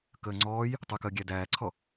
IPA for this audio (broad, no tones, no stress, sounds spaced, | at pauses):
k əː ŋ͡ǀ ɔː j | tˤ ɨ k əː ɡʲ æ d æː ǀʰ ɔ